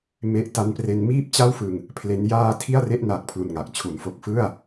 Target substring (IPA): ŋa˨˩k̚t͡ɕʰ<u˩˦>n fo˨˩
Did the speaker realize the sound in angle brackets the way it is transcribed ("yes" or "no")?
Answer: yes